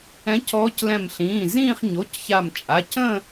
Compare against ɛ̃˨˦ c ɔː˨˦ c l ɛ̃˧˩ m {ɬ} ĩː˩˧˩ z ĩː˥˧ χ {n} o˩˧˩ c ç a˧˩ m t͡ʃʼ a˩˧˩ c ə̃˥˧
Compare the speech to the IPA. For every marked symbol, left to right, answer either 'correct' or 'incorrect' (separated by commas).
correct, incorrect